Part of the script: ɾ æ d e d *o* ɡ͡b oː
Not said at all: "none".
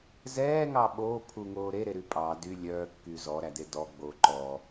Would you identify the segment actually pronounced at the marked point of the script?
ɔ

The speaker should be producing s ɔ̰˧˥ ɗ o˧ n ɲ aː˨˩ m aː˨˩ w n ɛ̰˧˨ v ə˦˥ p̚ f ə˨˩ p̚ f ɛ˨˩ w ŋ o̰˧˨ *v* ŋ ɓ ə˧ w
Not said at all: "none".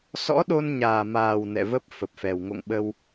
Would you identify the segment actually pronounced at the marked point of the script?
none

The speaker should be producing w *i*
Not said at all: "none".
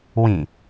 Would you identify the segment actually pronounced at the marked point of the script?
ĩ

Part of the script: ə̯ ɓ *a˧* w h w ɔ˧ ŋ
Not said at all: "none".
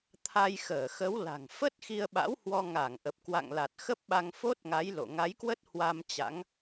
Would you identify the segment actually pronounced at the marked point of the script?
a̰˧˥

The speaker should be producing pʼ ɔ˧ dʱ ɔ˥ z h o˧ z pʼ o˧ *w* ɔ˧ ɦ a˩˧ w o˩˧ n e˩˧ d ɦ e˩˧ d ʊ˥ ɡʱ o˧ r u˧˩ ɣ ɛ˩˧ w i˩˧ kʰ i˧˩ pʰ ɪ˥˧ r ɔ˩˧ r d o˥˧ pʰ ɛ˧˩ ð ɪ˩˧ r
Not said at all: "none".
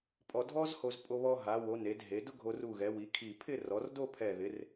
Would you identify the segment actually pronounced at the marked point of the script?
β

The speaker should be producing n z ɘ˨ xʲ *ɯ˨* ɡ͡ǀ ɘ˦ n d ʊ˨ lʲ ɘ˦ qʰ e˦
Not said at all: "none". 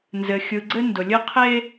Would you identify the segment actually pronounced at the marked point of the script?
ɯ˨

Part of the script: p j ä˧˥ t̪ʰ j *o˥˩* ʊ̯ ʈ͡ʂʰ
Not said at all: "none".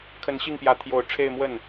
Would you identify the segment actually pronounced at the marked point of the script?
o˧˥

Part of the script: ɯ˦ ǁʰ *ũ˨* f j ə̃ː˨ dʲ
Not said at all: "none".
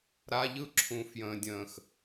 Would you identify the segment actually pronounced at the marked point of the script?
ũ˨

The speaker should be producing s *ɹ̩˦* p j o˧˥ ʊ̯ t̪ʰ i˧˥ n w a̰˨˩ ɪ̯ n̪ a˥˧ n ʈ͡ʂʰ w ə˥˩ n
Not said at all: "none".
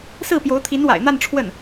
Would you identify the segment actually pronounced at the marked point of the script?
ɹ̩˥˩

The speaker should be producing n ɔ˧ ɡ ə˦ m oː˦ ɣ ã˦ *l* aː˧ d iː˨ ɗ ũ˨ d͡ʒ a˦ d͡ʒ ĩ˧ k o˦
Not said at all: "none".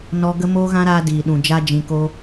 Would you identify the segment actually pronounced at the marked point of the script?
ɾ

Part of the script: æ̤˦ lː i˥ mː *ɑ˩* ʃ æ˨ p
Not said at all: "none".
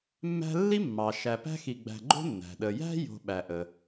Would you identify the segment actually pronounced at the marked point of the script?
ɑ˩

